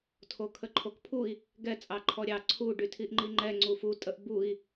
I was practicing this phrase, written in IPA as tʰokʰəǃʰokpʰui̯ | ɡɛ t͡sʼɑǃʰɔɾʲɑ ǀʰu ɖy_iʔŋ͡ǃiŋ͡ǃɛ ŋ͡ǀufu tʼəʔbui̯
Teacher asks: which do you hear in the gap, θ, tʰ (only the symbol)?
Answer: tʰ